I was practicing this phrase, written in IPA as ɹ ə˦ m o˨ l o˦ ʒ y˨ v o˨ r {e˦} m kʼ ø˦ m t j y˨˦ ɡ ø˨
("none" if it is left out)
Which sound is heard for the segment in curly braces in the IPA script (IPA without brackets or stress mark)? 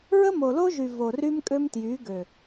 y˦